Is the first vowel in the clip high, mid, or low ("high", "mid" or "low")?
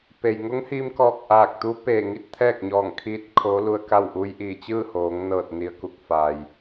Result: mid